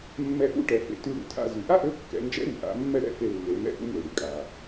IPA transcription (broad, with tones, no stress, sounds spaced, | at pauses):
mː ɛ˧ ʔ ṵ˧˥ ʈ ɛ˩˧ f ḛ˩˧ t y˧ ɽ ṵ˩ tʰ a̰˧ z y˩ ʔ a˥ ʔ ø˧˥ kː ɛ̰˩˧ n d͡ʒ ɛ̰˧˥ ɾ y˩ ʔ a̰˩˧ mː ɛ˥ ɽ ɛ̰˧˥ f e˧ lː e˩˧ m ɛ̰˧˥ ʔ ṵ˧˥ m ø˩ ɽ y˩ kʼ a˩